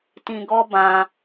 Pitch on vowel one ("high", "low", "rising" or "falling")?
low